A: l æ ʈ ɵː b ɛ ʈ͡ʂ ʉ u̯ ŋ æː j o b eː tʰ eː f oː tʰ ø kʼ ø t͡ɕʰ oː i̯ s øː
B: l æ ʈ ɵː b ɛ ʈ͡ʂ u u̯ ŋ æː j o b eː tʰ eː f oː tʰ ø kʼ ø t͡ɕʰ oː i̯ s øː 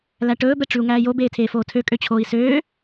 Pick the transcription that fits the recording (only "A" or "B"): A